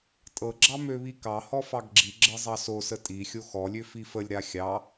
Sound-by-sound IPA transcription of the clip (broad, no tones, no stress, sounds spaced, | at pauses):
tʼ ɤ ɡ͡ǁ ɑ m ø β i k ɑ h ɔ f ɑ ɡ ɡ͡ǁ i ɡ͡ǁ ɤ zˤ ɑ s o s ə tʼ i xʲ o x ɔ lʲ ø f i f ə lʲ ɾ a xʲ ɑ